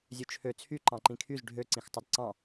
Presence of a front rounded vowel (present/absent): present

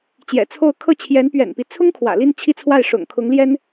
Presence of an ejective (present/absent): absent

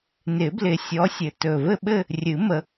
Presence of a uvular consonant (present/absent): absent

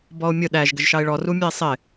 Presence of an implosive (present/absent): present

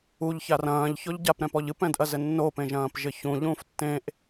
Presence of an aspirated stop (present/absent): absent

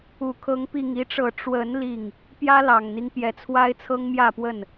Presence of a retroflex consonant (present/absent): present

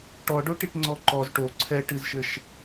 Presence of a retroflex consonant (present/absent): present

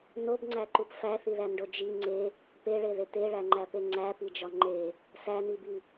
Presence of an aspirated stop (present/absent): absent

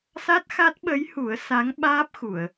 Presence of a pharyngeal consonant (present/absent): absent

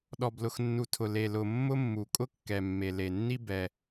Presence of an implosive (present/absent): present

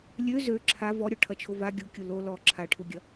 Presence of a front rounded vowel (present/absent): present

